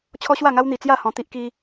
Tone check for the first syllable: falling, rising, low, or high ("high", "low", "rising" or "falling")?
high